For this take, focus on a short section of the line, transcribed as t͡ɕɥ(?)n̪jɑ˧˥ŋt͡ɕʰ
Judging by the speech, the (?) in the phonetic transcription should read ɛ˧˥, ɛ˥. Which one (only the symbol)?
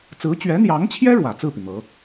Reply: ɛ˧˥